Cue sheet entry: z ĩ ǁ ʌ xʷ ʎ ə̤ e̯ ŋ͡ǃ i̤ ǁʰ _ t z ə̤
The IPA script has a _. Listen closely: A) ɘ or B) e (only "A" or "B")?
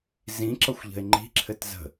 A